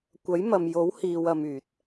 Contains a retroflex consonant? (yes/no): no